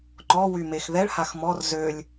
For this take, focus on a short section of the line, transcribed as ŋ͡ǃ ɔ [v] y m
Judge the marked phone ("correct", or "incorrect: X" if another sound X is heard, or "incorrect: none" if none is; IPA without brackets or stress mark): incorrect: w